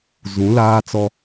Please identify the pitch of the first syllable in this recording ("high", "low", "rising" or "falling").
rising